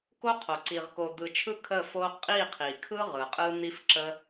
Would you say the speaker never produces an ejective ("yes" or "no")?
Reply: no